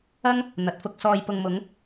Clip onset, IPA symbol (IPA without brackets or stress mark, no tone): ɐ